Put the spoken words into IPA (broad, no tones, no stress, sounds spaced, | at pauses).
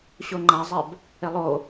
ɕ o ŋ͡ǃ a zˤ ɛ b | e lˠ o